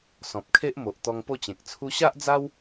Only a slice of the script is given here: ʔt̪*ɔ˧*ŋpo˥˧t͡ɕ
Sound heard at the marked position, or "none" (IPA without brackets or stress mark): ɔ˧